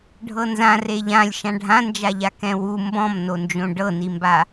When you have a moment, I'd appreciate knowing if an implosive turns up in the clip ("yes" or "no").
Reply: no